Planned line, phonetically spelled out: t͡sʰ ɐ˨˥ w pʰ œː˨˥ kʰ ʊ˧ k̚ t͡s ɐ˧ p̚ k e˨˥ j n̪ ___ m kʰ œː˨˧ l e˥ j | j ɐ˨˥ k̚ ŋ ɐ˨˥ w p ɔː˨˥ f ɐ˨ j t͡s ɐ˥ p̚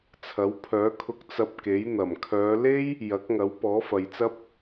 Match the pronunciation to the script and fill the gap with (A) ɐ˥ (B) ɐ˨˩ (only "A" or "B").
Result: B